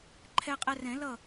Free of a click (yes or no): no